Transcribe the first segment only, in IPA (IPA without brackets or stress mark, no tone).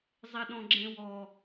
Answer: zˤ